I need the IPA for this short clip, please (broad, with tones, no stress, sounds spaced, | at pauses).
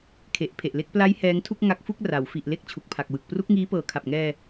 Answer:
kʰ e˨˩ ʔ pʰ e˨˩ ʔ l e˥˩ k̚ p l a˦˥ j h ɛː˦˥ ŋ tʰ u˥˩ k̚ ŋ a˦˥ k̚ f u˥˩ k̚ r a˩˦ w f i˨˩ ʔ l e˥˩ k̚ t͡ɕʰ u˨˩ k̚ pʰ a˨˩ k̚ w ɯ˨˩ k̚ p r u˦˥ k̚ ŋ iː˦˥ p ɤː˨˩ kʰ a˨˩ p̚ ŋ ɛː˧